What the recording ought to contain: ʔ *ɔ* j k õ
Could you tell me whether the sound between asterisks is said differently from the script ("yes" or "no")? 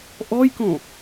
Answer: no